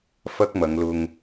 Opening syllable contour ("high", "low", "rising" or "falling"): high